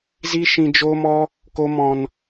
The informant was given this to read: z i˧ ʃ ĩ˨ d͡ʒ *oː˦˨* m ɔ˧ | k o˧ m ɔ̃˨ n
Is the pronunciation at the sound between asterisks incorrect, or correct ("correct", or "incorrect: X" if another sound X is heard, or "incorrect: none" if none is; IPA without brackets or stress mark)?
incorrect: oː˧